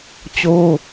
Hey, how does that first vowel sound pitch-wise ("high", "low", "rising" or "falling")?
high